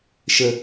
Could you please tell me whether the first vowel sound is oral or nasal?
oral